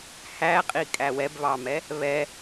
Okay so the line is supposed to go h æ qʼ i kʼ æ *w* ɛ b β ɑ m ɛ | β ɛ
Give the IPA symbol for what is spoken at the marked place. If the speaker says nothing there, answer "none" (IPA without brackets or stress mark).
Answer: w